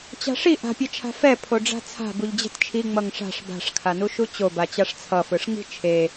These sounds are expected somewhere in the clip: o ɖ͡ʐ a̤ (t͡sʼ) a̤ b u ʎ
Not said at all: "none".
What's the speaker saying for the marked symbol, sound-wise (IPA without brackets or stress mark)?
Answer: t͡sʰ